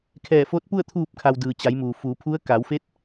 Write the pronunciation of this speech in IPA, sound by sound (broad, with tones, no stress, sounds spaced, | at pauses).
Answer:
kʰ ɛː˧˩ f o˧˥ t̚ p u˥˨ ə̯ t̪ʰ uː˧˩ p̚ kʰ a˩ w d ɯː˩ t͡ɕ a˩˧ j m uː˩ f uː˩˧ pʰ u˧˥ ə̯ k a˩˧ w f e˧˥ t̚